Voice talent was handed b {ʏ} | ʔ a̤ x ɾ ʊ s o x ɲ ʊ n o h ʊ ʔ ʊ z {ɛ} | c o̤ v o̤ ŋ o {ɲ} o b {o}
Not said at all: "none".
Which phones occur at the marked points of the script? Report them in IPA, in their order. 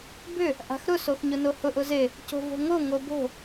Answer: ʏ, e, ŋ, o̤

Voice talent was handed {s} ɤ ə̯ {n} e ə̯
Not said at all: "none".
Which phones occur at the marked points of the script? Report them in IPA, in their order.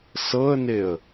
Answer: s, n

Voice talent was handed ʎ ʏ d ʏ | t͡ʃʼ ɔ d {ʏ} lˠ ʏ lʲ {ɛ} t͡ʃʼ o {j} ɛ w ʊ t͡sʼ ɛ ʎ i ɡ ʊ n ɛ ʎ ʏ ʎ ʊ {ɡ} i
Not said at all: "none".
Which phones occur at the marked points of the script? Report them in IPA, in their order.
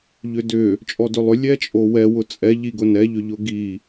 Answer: ʏ, ɛ, w, ɡ

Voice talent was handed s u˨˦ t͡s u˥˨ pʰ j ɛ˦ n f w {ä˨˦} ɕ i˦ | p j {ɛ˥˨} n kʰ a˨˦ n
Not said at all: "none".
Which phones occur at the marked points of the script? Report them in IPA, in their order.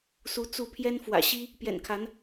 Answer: ä̰˨˩, ɛ̰˨˩

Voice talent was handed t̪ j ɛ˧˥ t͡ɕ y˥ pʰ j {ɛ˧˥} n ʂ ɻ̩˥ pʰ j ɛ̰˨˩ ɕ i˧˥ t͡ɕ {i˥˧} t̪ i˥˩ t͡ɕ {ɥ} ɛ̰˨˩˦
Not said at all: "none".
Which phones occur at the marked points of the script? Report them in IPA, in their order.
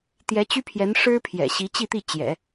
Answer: ɛ˧˥, i˥˧, j

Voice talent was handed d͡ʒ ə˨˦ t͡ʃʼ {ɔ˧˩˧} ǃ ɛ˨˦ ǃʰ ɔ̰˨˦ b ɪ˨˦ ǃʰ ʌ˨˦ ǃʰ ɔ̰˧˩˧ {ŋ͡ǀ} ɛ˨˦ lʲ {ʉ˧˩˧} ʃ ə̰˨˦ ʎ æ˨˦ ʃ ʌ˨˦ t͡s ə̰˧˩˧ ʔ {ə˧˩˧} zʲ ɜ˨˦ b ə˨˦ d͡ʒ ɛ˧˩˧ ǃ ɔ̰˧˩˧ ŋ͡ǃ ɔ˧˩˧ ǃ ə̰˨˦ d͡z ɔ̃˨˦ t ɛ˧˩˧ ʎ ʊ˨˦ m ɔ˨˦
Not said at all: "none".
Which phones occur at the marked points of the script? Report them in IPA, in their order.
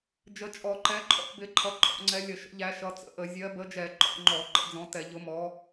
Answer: ɔ˧˩˧, ŋ͡ǀ, ə˧˩˧, ə˧˩˧

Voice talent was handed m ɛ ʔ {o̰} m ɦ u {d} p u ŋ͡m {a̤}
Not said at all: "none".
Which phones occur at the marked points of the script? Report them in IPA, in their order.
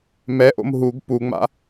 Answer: o̰, ɡ, a̰

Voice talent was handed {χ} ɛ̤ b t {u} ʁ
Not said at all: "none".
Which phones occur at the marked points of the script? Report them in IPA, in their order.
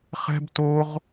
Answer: χ, o

